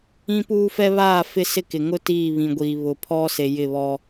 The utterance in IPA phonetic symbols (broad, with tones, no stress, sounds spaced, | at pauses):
ĩ˦ p uː˦ f ɛ˦ β aː˦˨ f ɪ˦ s ɪ˦˨ k ɪ˨ ŋ ʊ˦ t iː˦˨ β ĩ˨ ɡʷ iː˨ β ʊ˨ pʰ ɔ˦ s e˨ j ɪ˦˨ β ɔ˦